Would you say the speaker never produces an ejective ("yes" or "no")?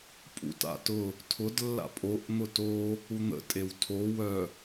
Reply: no